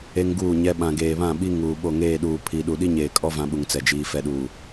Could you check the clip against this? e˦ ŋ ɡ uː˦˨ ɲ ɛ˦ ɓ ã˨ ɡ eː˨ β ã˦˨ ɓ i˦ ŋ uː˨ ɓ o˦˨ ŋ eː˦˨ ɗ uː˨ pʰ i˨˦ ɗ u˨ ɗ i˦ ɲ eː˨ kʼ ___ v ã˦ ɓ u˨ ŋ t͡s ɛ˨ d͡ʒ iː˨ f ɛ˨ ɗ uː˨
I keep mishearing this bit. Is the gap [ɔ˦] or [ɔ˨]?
ɔ˦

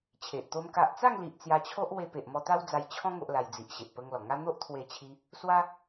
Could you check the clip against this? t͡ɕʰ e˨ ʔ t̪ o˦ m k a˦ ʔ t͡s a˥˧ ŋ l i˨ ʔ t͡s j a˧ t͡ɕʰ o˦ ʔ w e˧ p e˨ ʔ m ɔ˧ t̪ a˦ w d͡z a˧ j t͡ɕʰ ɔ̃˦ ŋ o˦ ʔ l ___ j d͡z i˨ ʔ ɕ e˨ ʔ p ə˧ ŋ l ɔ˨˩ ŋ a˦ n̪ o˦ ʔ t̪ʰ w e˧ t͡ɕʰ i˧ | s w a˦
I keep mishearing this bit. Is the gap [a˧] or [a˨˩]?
a˧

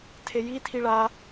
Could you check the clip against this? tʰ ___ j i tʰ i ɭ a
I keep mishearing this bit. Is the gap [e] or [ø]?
e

